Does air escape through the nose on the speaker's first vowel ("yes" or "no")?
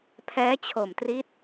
no